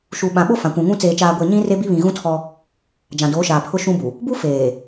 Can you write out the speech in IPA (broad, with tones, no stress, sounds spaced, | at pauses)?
ʃ u˨ ɓ ã˨ ɓ o˦ f ã˨ kʷ ũ˨ ŋ ũ˦ t͡s eː˨ t͡ʃ aː˨ ɡʷ eː˨ ɲ ĩ˦ r e˦ b i˦ β ĩ˨ ɣ ũ˦ tʰ ɔ˦ | d͡ʒ ã˨ d oː˨˦ ʃ aː˨ pʰ ʊ˦ ʃ ũ˦ b u˨ | b u˦ f eː˨